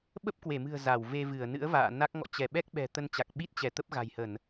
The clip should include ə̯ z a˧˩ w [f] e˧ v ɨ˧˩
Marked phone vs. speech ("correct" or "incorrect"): incorrect